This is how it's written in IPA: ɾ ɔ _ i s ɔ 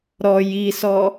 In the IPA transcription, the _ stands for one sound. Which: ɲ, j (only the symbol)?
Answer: j